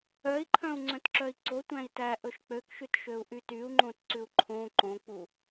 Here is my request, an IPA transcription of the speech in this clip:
œ i̯ ǃʰ œ̃ u̯ ŋ͡ǀ œ̃ t ǁ œ i̯ ǀ o tʷ æ̃ i̯ t æ ʔ ɵ ʃ k͡p ø k ʃ ʉ t ʃ ø u̯ ʔ y t y u̯ ŋ͡ǃ õ t ǀ ʉ u̯ ǃʰ õ ǃ õ k͡p u

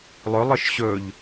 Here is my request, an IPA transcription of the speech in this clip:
lˠ ɵ lˠ ɯ ʃ ɕ ɵ ʎ

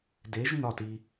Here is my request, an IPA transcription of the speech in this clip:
d e˨˦ ʒ n ɒ˦˨ t i˧

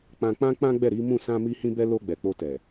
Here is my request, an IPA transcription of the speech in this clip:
k͡p ã˧ k͡p ã˦ k͡p ã˦ ɡ͡b ɛ˦˨ ɾ i˨˦ m ũ˦˨ s ã˧ m i˧ h ĩ˧ b ɛ˧ l o˧ ɡ͡b ɛ˨ k͡p o˧ t ɛ˨

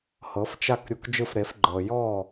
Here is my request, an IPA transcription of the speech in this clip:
h ɤ˩˥ f t͡ʃ a˥˩ k ɾʲ u˧ k d͡ʒ ɯ˥˩ f ɾ e˩˥ f ɡ͡ǃ ɤ˩ j ɔ˥˩

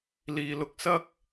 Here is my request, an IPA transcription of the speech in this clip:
l iː˨ l ʊ˧ k̚ s ɐ˥ k̚

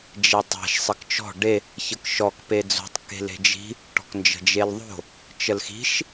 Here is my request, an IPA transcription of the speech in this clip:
d͡ʒ e tˤ e̤ ʃ sˤ ə k t͡ʃ ɔ̤ ɖ e | ç ə k ʃ ɔ k p e d͡z o̤ tˤ k e̤ l e̤ d͡ʒ i̤ | ʈ ɔ̤ k n d͡ʒ ə̤ d͡ʒ e l ðˤ o̤ | t͡ʃ ə l x i̤ ʃ

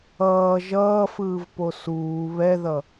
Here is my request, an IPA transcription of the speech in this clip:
ʌː ʒ ʌː f ɯː v p o s uː β ɛ ð ʌ

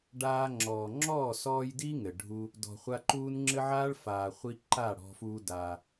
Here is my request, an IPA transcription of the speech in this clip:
ɖ aː˧ ŋ͡ǁ ɔː˨ ŋ͡ǁ ɔː˦˨ s ɔː˧ j d i˦ ŋ ɘ˨ ɖʱ u˧ | d ɔ̤˨ χʷ a˧ ǃ uː˦ n ŋ͡ǁ ɘ˦ ʕ aː˦ ɭ f aː˨ χʷ i˧ ǃ a˦˨ ɽ ɔ̤˧ f uː˦ d a˧

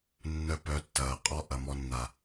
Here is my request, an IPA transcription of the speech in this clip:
nː œ˧ p œ˨˦ tː ɐː˨ qʼ ɔ˧ ʔ ɐ˨ m ɔ˧ nː a˨

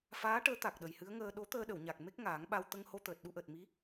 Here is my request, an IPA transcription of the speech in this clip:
f aː˧˥ ʈ əː˧˥ t̪ a˨˩ k̚ ɗ ə˨˩ j h ɨ˧˥ ə̯ ŋ əː˧ ɗ o˧˥ t̪ əː˧ ɗ ə˨˩˨ w ɲ a˨˩ k̚ m e˦˥ k̚ ŋ aː˨˩˦ ŋ ɓ a˧ w t̪ ə˧ ŋ h o˧ t̪ əː˨˩ t̚ ɗ u˧ ʔ əː˨˩ t̚ m i˧˥

